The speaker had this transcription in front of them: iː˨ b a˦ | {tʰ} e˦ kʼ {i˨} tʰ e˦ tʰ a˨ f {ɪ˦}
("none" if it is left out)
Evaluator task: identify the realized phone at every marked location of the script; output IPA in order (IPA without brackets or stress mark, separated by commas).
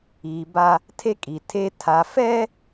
tʰ, i˨, ɛ˦